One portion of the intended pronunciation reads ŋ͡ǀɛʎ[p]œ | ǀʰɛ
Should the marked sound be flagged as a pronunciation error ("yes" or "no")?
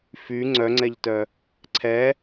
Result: yes